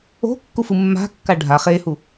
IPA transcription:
o̤ kː u f ɯ mː a̤ kː a ɖʱ a χ e h u

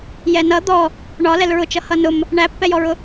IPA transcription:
j ɛ n ʌ d̪ ɔ | ɳ ɒ l ɛ l ɹ ʊ t͡ʃ ʌ h ʌ n ʊ m | ɳ æ pː ɛ j ɔ ɹ ʊ

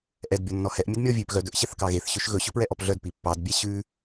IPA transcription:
ʔ ɛ d bʲ ɔ nː ɔ h ɛ ʔ mʲ ɵ d mʲ ɔ vʲ ʉ p ɣ œ d ɵ ʔ ɕ ɛ θ k ɑ ɣ e θ ɕ ø ʃ ɣ ɵ ɕ ɵ p ɹ ɛ ʔ ɔ p ɮ œ d p i pː ɑ d bʲ æ ɕ ʉ

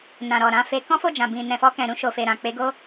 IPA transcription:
n ã˨ ɾ ɔ˨ ɾ ã˧ f e˧ k ɔ̃˦ f o˦˨ d͡ʒ ã˨ b ĩ˨ n ɛ̃˨ f ɔ˧ k ɛ̃˨ ɾ ũ˧ ʃ o˨ f e˨ ɾ ã˨ k͡p e˨˦ ɡ o˦

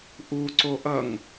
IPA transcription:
ʔ u ǀ o ʔ ʌ ŋ

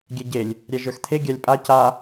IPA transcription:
ɡʲ ɛ ɟ e lʲ | ɾʲ æ ʒ ə˞ x t̪ʰ e ɡʲ a lʲ pʼ a c a

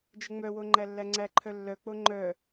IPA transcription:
d͡ʒ ə ŋ͡m œ w o ŋ͡ǃ æ lː æ ŋ͡ǀ æ ǃʰ œ lː œ k͡p o ŋ͡ǃ œ

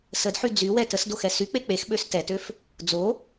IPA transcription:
s ə d ħ y d͡z y w ɛ t ə s d o x ɛ s y k͡p e k͡p e x ɓ ø s t ɛ t ø f | d͡z o

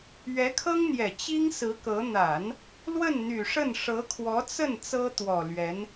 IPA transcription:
ɥ ɛ˧˥ kʰ ɤ˥ ŋ n̪ j ɛ˨˩ t͡ɕ i˥ ŋ s ɹ̩˧˥ k ɤ˧˥ n̪ a˨˩˦ n | l w ə˥˩ n n̪ y˨˩ ʂ ə˥˩ n ʂ ɤ˧˥ kʰ w ɔ˧˥ t͡s ə˥˩ n t͡s ɤ˥ t̪ w ɔ˨˩ l ɥ ɛ˧˥ n

